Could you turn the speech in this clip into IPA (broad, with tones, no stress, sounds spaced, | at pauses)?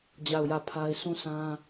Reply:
d͡ʑ a˦˨ ʊ̯ j ä˦˨ pʰ a˦ ɪ̯ sʰ ũ˦˨ s ã˦